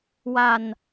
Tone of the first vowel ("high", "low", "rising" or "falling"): low